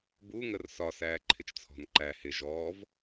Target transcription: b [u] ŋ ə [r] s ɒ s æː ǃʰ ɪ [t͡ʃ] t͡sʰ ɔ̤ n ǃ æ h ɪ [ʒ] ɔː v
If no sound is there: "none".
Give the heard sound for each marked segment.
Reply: u, r, t͡ʃ, ʒ

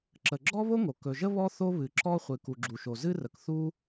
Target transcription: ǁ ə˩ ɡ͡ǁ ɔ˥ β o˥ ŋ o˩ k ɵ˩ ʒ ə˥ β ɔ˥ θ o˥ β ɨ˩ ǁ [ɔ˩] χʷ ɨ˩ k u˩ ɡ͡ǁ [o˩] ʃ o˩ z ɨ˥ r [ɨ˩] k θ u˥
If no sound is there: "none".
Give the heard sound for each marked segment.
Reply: ɔ˥, u˩, ə˩

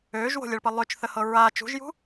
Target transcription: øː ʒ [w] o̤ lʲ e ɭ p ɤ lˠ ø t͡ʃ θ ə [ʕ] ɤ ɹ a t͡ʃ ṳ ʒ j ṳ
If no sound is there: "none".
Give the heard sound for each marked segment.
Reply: w, h

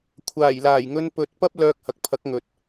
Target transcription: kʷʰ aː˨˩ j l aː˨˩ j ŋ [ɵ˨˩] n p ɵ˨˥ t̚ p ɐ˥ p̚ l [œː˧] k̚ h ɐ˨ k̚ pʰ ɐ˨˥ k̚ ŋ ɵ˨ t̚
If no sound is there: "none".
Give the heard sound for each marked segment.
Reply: ɵ˧, œː˧

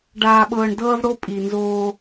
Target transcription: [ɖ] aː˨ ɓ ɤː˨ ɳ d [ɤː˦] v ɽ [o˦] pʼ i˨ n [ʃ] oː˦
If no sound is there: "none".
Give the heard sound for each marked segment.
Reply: ɖ, ɤː˦, o˦, z

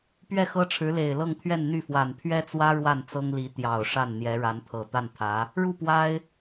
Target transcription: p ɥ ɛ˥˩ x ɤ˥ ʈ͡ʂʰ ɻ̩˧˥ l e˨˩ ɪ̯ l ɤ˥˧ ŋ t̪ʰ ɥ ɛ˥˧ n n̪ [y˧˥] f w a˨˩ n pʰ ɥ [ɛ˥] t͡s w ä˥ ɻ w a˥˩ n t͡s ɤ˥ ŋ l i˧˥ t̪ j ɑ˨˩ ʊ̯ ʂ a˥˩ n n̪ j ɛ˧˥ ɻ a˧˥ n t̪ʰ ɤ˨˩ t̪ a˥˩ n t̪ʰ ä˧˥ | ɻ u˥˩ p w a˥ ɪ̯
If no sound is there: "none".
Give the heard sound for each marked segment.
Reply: y˥˩, ɛ˥

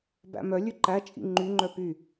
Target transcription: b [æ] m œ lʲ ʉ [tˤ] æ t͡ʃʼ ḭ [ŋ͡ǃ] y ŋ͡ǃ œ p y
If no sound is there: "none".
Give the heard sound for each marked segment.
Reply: æ̰, ǃ, ŋ͡ǃ

